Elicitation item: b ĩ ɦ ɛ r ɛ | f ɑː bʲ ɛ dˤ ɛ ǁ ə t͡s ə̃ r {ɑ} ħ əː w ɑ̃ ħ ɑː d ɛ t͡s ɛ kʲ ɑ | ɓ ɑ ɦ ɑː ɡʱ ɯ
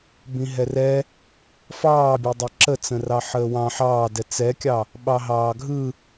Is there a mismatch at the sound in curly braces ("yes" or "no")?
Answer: no